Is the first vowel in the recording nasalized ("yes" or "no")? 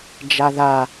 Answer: no